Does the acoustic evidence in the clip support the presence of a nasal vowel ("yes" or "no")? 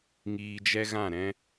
yes